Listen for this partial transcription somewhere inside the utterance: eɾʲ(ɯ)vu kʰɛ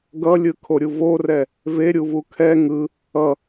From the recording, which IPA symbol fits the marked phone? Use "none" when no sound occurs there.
u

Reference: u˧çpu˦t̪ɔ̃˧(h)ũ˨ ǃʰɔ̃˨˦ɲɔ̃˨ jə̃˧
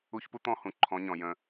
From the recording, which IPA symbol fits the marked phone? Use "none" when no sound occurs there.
h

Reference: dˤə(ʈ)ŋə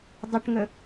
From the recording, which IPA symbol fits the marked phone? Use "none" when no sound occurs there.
ʈ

